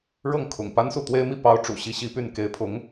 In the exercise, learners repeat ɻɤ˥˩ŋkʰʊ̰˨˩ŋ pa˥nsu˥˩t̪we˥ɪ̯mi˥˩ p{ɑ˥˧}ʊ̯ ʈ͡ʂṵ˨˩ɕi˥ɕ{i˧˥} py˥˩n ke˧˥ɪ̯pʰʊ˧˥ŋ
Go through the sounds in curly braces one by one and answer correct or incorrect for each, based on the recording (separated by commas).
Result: incorrect, incorrect